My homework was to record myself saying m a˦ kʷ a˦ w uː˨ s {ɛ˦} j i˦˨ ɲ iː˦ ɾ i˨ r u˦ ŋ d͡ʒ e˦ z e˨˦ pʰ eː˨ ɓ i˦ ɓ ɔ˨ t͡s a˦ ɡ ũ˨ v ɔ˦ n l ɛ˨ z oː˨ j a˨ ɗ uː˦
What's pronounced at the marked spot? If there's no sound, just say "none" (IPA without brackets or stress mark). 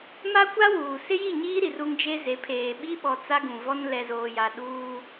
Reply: ɪ˦